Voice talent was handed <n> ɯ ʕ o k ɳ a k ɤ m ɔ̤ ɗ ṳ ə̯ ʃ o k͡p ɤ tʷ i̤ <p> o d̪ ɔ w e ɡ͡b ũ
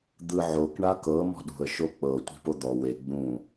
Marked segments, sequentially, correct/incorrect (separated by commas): incorrect, correct